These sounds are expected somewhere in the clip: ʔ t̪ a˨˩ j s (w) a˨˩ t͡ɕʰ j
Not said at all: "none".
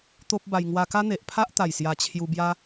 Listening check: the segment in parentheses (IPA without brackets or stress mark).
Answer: j